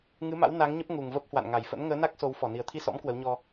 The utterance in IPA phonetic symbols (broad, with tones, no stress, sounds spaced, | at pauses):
ŋ ɨ˨˦ m a̰˧˥ w n a˨˦ ŋ ɲ ə˦˥ p̚ ŋ u˨˩ ŋ v ə˦˥ p̚ h w a̰˧˨ n ŋ a˧˩ j f ə̰˧˥ n ŋ əː˨˦ n a˦˥ k̚ s o˨˦ w f ɔ˧˩ n i˨˩ ə̯ t̪ʰ i˧ s ɔ̰˧˥ m k w ə˨˦ w ɲ ɔ˧